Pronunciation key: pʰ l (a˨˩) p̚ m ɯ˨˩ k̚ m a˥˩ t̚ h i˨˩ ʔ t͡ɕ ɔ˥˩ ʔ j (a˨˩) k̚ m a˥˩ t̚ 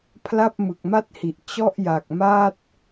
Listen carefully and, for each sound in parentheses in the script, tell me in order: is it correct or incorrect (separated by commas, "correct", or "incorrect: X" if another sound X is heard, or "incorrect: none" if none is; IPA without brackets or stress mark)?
incorrect: a˥˩, correct